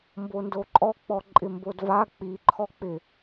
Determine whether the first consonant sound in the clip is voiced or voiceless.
voiced